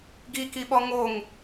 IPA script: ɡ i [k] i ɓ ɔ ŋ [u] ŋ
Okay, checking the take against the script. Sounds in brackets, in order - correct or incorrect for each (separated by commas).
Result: correct, incorrect